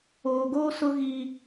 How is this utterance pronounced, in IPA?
oː˨ ɡ oː˦ s ʊ˦ ɣ iː˦

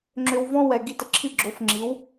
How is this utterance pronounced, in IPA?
ŋ͡ǁ ʏ˧ w v ɔ̃˥ w ɛ˩ ɡ i˥˩ t ə˧ ǁʰ i˥˩ ɡ͡ǁ o˩˥ f ŋ͡ǁ i˩˥ w

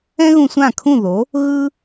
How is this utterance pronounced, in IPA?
ɛ̃˥ ɣ ũ˧ sʷ ã˥˩ kʰ ũ˥˩ ð o˩˥ | ɣ ɯ˥

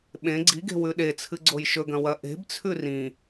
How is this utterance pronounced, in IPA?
ɓ ẽ ɡ͡ǀ i ɡ e̤ w ʉ ɗ e t͡sʰ ɨ ɡ͡ǀ o j ʃ ɵ ɡ ɐ̃ w ɐ ʔ e̤ b t͡sʰ ʉ r ĩ

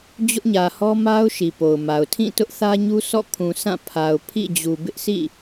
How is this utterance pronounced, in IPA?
d͡ʑ ʊ˦ ʔ ɲ ä˨ h ɔ˦ m a˦ ʊ̯ ʃ i˨ p o˨ ʊ̯ m a˨ ʊ̯ tʰ ĩ˦˨ t ʊ˦ ʔ θ ä˦ ɲ u˦ s ɔ̰˦˨ kʰ ũ˨ s ã˦˨ pʰ a˨ ʊ̯ pʰ ḭ˦˨ d͡ʑ u˨ b ɪ˦ ʔ s ḭ˦˨

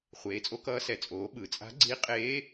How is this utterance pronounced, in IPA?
χʷ eː˩˥ t͡sʼ o˧˥ k ʌː˧˥ s ɛ˩˥ t͡sʼ oː˩˥ ɓ ɯ˩˧ t͡sʼ a̤˧˥ ɡ͡ǀ iː˧˥ qʼ eː˧˥

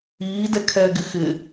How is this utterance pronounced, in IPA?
iː d ɛ kʰ ɛː ɡ ɪ x ɪ

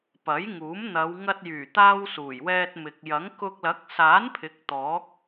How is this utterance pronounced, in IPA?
p ɐ˨˥ j ŋ uː˨˥ m n̪ ɐ˨˧ w ŋ ɐ˧ t̚ j yː˨˩ t̪ aː˧ w s uː˨˩ j w ɛː˧ t̚ m ɪ˨ k̚ j ɐ˨˥ ŋ k ʊ˧ k̚ l ɐ˨˥ k̚ s aː˨˥ n pʰ ɪ˨˥ k̚ t̪ ɔː˨˥ k̚

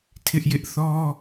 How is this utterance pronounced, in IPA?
tʰ ɪ˦ ʔ j ɪ˦ ʔ θ ɔ˦

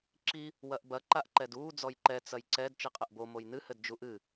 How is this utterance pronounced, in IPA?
ǁ i | w ɐ ʔ b ɐ ǃ a ʔ ǃ ɛ d uː d͡z ɔ j ǃ ɛ t͡s ɐ j ǀ ɛ d t͡ʃ i qʼ ɘ ʔ b o m o j n ɨ h ɘ d d͡ʒ u ʔ ɨ

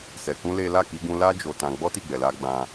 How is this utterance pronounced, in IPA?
s ɛ˨ k ũ˧ l e˦ l a˦˨ k i˧ ɡ ũ˧ l a˦ d͡ʒ o˧ t ã˧ ɡ͡b ɔ˦ t i˦˨ ɡ͡b ɛ˨ l a˧ ɡ͡b ã˧

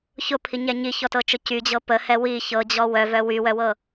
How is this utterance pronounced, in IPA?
ç ʊ pʰ i ɲ ɛ ɲ i ç ɔ t ɤ t͡ʃ ʊ c y d͡ʑ ɤ p ə h ɛ w i ç ɤ d͡ʑ ɔ w œ v œ w y w œ w ɤ

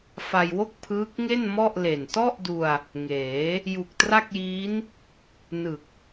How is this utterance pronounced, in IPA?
f a˧ j w o˥˩ k̚ pʰ ɯː˦˥ k̚ ŋ e˥˩ n m ɔ˥˩ ʔ l e˨˩ n t ɔ˥˩ ʔ d u˧ a̯ | ŋ eː˩˦ | j u˨˩ k̚ t r a˥˩ k̚ j iː˦˥ n | n ɯ˨˩ k̚

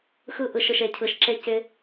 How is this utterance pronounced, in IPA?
x ɯ˧ ʔ ɯ˨ ʃ ɯ˨ ʃ e˨ cʰ ɯ˨ ʃ ǁ e˧ c ɪ˧

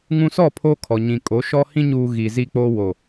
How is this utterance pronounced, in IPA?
ŋ ũ˨ s ɔ˦˨ pʰ o˦ kʰ ɔ˨ ɲ ĩ˨ kʼ o˨˦ ʃ ɔ˦ h ĩ˦ ɲ uː˨ ɣ i˨ z i˦ k͡p oː˦ w o˨

